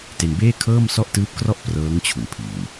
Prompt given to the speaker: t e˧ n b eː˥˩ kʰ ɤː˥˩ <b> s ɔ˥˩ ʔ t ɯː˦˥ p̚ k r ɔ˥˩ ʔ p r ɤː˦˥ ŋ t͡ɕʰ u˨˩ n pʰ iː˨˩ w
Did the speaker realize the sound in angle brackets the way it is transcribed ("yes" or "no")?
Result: no